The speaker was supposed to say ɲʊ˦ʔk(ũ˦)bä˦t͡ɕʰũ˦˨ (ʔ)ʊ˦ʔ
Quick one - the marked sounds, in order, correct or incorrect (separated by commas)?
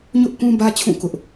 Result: correct, incorrect